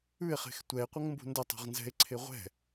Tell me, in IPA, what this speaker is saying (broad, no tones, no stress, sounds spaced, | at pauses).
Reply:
ʉ e̯ χ e̤ x tʷ ɛ e̯ qʷ ə ŋ m b ṳ n d ə tˤ ṳ ʁ n z ɛ̤ e̯ ǀʰ e ʁʷ ɛ̤